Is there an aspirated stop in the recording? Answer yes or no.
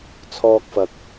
yes